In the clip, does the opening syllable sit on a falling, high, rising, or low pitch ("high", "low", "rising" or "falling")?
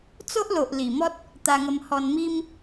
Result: high